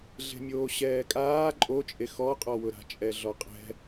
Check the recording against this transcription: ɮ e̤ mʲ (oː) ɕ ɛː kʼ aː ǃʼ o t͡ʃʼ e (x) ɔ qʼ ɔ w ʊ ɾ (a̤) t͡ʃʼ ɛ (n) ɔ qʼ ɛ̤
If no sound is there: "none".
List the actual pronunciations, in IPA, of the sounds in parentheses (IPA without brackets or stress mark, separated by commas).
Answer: oː, x, a̤, ɮ